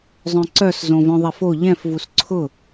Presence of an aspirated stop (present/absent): present